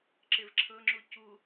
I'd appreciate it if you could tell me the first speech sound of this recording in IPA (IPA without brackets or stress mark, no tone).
ǁ